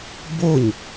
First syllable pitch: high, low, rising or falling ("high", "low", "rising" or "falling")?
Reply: falling